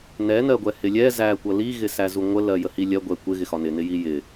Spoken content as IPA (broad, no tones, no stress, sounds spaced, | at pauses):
n ɛ n ɜ ɡʷ ɛ h ɪ lʲ ɛ z æ kʷ ʌ l i ɣ ɪ s æ z u ŋʷ ə l ɜ j ə h i lʲ ɜ ɡʷ ɛ kʷ ɪ ɣ ɪ x ɒ n ɪ n ɪ j i j ɪ